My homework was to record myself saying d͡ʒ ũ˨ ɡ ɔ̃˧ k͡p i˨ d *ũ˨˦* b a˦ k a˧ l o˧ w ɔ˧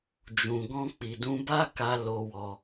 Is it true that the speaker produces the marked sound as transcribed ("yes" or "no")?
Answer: yes